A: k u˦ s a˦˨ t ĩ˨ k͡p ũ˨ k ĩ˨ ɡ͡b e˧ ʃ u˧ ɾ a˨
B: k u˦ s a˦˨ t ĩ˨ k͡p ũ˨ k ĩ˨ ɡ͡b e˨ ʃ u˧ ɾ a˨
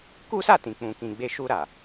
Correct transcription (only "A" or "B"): A